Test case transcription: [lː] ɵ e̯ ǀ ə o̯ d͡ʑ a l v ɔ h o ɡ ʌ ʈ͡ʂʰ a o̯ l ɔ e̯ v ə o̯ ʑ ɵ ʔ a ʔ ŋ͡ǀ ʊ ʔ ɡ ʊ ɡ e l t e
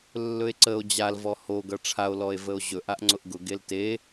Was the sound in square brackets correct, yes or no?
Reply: yes